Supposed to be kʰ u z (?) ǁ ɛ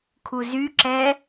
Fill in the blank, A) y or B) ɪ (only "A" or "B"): A